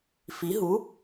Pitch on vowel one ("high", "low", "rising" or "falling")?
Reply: rising